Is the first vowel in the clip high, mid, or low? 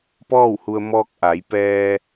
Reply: mid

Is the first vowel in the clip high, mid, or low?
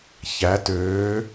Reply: low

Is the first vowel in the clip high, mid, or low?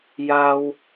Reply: low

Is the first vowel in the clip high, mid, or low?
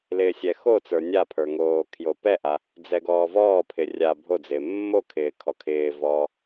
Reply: high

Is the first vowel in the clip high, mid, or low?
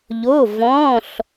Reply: mid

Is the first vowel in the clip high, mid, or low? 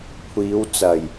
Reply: high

